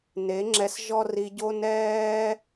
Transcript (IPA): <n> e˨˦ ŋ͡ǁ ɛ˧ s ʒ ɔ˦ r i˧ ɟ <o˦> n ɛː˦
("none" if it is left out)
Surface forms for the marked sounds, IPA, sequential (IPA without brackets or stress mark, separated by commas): n, o˦